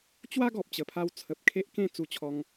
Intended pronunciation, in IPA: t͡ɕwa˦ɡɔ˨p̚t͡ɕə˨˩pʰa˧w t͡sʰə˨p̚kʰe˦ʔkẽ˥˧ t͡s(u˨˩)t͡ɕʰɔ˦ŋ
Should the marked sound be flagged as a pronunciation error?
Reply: yes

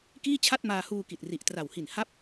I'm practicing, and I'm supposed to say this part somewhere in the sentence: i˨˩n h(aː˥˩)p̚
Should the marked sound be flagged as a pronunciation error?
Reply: yes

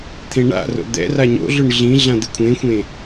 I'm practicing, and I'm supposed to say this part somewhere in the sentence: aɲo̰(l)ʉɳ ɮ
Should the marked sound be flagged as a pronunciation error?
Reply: yes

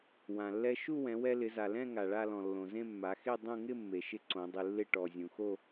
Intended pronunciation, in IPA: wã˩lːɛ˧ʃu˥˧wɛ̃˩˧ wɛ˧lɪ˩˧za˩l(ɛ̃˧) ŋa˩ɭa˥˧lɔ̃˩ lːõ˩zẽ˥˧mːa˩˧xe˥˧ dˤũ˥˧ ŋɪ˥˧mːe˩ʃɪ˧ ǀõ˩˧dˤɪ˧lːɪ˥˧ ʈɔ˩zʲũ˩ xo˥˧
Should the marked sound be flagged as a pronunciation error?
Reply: yes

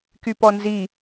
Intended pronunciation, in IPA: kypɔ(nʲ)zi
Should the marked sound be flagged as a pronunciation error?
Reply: yes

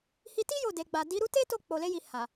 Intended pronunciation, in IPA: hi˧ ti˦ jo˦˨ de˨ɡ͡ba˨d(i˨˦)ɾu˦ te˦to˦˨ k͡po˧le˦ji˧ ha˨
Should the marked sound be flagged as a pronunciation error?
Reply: no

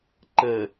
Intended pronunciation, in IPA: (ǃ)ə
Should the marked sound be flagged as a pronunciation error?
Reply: no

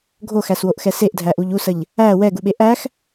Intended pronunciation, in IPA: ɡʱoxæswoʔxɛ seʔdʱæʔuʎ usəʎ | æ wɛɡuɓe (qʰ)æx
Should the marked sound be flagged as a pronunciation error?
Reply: yes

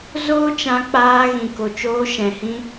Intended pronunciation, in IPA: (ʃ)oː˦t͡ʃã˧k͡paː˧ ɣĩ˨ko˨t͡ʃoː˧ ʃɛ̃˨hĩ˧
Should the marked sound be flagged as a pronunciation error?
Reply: yes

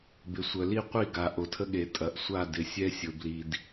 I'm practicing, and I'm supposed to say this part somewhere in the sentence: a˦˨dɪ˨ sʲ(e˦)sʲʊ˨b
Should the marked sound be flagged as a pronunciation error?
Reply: yes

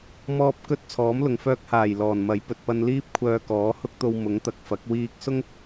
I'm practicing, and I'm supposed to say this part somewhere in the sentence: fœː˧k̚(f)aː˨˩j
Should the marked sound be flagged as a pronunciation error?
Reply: yes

